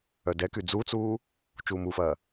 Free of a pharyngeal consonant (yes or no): yes